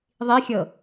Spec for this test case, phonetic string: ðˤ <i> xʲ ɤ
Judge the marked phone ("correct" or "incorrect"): correct